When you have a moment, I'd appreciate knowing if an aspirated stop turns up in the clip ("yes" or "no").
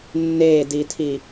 yes